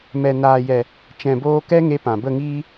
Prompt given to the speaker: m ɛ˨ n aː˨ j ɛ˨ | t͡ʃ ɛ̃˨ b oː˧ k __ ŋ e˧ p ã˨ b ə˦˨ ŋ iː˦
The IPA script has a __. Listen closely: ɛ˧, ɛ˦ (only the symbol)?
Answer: ɛ˦